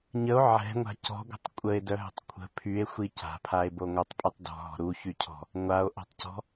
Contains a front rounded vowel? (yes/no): yes